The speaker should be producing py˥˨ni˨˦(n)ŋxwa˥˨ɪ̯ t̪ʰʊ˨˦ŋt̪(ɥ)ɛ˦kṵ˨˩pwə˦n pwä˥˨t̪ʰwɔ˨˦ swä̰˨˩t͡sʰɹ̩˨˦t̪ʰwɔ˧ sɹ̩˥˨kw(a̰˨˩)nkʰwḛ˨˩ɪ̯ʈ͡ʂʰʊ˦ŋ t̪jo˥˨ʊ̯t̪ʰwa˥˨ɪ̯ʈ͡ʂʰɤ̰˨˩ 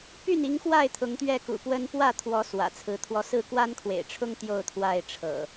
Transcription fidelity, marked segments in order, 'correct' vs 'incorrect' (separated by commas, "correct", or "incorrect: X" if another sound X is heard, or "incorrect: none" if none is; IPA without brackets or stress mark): incorrect: none, correct, incorrect: a˦